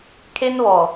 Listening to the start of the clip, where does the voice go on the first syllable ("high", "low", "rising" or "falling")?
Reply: high